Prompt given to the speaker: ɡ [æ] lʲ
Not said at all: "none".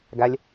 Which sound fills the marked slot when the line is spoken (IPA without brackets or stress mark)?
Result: æ